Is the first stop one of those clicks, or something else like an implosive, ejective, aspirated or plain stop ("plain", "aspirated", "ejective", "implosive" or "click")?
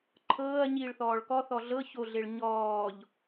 click